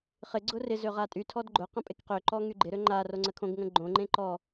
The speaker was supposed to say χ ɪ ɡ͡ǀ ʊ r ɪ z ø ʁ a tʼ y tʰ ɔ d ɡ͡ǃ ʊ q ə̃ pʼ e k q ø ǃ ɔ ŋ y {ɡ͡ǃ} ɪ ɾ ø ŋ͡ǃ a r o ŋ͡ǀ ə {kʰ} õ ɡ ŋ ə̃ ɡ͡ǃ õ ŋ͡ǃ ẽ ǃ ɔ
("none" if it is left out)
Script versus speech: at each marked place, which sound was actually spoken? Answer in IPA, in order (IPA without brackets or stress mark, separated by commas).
ɡ͡ǃ, kʰ